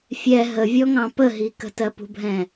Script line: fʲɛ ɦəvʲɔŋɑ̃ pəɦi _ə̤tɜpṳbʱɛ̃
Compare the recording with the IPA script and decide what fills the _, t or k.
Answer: k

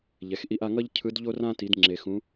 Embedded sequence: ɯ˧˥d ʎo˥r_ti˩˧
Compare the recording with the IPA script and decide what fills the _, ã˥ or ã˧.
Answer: ã˥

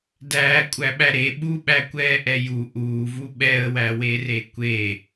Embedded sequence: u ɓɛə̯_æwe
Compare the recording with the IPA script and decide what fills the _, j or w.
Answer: w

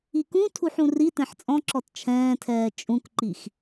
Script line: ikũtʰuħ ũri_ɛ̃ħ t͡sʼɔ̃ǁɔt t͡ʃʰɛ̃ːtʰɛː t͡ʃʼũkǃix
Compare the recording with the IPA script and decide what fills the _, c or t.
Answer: t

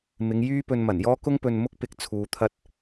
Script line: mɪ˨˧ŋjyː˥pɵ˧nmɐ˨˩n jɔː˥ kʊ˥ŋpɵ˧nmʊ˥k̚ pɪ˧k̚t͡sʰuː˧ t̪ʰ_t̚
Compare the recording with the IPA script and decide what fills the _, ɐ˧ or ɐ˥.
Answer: ɐ˥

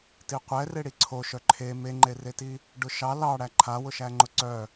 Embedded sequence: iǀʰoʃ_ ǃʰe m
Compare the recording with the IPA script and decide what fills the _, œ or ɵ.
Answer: œ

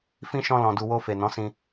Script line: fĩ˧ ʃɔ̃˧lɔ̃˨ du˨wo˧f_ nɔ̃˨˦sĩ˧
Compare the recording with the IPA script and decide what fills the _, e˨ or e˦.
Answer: e˨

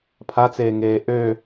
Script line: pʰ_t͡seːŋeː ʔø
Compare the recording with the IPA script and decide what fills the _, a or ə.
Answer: a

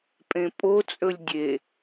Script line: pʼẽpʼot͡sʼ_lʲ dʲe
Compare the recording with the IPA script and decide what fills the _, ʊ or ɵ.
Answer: ɵ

